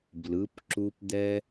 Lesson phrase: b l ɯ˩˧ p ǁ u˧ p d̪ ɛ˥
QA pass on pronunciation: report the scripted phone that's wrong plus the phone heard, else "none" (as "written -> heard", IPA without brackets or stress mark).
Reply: none